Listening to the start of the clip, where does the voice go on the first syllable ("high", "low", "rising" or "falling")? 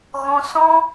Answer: high